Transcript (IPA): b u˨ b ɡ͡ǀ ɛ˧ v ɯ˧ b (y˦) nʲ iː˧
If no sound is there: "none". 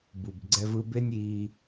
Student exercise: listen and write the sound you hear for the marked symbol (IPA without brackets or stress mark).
e˦